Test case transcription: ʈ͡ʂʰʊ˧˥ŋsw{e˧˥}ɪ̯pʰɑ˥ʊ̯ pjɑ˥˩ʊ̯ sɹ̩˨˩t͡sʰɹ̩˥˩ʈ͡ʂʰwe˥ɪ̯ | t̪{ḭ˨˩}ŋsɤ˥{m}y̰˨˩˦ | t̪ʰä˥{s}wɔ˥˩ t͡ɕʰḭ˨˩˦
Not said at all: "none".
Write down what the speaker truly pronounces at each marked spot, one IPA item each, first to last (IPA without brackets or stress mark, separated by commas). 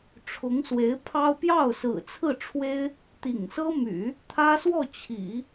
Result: e˧˥, ḭ˨˩, m, s